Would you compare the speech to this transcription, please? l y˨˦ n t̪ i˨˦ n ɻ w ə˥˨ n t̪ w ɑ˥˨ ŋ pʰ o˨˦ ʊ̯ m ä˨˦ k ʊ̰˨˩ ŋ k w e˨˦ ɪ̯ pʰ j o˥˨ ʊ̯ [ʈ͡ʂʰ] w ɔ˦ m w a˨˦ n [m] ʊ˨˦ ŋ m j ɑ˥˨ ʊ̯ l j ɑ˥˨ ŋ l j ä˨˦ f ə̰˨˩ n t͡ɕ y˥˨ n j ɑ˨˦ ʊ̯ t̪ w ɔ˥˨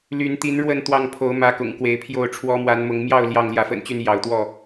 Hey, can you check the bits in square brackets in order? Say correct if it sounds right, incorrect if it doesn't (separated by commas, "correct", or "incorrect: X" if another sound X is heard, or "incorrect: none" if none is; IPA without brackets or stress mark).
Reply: correct, correct